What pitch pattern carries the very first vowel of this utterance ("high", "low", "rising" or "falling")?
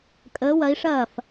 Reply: rising